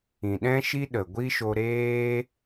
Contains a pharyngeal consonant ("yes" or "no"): no